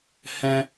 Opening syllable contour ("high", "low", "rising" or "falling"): high